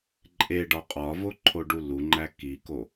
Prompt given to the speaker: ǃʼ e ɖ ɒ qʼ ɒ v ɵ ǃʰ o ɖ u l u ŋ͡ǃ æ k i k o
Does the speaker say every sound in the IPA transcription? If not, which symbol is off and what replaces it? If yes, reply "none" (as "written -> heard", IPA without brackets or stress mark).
ɵ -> o